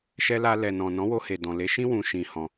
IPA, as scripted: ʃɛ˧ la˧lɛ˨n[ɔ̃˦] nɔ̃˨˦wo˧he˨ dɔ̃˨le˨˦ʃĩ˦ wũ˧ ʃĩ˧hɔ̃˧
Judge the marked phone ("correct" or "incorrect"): incorrect